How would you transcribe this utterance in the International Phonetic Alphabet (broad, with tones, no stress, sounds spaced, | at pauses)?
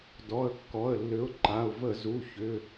d ɔ˩˧˩ ə̯ kː ɔ˩˧˩ ə̯ lː ʏ˨˥ ʊ̯ ǃ a˩˧˩ ʊ̯ v ə˧˩˧ z u˩˧˩ ç ʏ˩˧˩